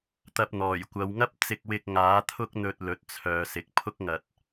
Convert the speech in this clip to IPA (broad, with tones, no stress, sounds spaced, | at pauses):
t̪ ɐ˧ p̚ n̪ ɔː˨˩ j kʷ ɐ˨˧ w ŋ ɐ˥ p̚ t͡s ɪ˧ k̚ w ɪ˧ k̚ ŋ aː˨˥ t̪ʰ ʊ˥ k̚ n̪ ɵ˧ t̚ l ɵ˨˥ t̚ t͡sʰ œː˨˧ s ɪ˨ k̚ pʰ ʊ˥ k̚ ŋ ɐ˨ t̚